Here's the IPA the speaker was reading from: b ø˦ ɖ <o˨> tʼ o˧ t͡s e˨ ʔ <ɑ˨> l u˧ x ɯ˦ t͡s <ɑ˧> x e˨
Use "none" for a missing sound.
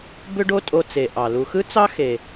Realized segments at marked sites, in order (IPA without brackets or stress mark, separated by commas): o˦, ɑ˨, ɑ˦